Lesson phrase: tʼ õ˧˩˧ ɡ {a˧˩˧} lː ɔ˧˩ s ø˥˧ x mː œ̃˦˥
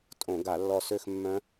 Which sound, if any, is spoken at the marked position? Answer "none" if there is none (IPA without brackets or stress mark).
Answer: a˧˩˧